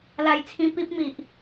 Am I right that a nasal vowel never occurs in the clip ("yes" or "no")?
no